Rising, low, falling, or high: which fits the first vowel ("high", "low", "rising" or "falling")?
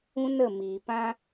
high